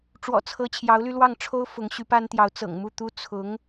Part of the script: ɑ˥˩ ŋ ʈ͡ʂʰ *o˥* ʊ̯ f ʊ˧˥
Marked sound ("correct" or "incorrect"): correct